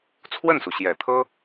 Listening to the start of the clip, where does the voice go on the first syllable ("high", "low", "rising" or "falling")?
falling